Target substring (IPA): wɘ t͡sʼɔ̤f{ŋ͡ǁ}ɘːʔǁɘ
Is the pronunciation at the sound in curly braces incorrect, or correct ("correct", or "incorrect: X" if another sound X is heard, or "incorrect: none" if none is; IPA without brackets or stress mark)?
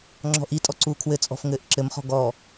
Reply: incorrect: ŋ